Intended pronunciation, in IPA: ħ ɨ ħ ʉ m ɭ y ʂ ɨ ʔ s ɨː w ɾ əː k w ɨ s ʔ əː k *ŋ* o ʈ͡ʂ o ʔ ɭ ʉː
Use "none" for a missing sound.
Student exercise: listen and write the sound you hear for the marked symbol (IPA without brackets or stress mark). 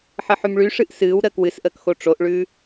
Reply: x